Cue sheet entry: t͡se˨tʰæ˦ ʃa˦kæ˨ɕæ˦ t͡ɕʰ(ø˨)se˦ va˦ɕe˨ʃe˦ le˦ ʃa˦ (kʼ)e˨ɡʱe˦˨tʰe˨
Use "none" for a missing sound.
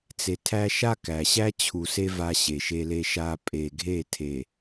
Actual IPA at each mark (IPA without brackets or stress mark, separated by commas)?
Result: u˨, pʼ